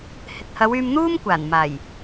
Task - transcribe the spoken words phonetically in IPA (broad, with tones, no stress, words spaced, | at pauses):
hɪ˨k̚hɐ˨˧w yː˧mn̪uː˥mkʷaː˨˩n maː˨˩j